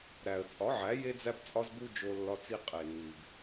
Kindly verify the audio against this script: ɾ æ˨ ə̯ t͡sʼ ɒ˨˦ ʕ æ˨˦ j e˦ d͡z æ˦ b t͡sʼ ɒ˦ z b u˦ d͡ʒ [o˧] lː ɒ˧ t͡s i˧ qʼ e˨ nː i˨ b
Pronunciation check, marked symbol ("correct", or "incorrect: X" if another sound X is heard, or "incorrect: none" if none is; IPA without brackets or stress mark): correct